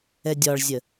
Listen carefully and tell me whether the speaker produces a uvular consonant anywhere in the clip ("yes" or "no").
no